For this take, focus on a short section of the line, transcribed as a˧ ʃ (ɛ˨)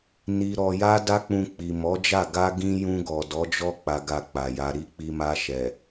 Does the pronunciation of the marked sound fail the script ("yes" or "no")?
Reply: no